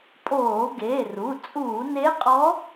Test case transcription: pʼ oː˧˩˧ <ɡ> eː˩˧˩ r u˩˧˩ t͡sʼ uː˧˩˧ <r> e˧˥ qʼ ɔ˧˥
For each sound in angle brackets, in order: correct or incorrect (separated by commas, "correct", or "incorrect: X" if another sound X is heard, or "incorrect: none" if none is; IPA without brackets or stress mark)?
correct, incorrect: n